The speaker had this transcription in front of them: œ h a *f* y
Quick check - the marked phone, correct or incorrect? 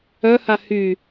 incorrect